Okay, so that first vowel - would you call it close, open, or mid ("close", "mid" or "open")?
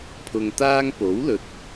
close